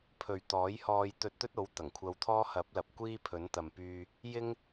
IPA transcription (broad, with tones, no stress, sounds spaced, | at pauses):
pʰ ɵ˨ ɥ t̪ ɔː˨˥ j h ɔː˧ j t̪ ɵ˧ t̚ t̪ ɵ˥ t̚ o˨˥ w t̪ ɐ˨˩ ŋ kʷʰ ɐ˧ w t̪ʰ ɔː˥ h ɐ˨˥ p̚ l ɐ˨ p̚ kʷ iː˥ pʰ ɵ˨˥ n t̪ ɐ˨ m p yː˧ | j ɪ˥ ŋ